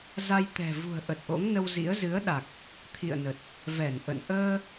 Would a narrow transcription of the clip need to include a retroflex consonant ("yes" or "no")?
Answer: no